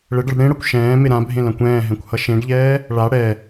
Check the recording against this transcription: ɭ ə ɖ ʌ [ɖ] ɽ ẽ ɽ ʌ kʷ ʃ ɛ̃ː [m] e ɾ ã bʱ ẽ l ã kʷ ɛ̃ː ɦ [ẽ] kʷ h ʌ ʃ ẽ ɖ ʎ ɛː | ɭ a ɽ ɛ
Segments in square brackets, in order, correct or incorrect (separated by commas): correct, correct, incorrect